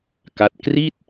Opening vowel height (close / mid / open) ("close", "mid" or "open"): open